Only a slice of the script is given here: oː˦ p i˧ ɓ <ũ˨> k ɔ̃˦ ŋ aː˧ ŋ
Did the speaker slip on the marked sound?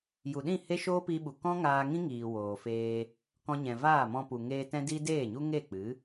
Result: yes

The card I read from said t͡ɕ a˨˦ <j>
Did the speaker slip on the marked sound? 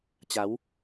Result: yes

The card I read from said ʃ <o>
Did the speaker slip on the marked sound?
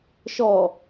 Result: yes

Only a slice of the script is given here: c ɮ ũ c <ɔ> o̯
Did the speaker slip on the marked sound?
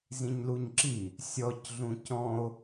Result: yes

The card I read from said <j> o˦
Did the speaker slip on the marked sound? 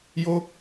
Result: no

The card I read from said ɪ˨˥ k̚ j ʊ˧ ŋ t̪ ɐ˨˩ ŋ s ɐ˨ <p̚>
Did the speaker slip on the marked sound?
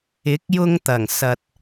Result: yes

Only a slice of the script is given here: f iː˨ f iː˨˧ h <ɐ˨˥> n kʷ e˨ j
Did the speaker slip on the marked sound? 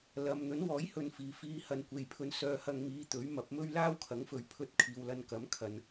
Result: yes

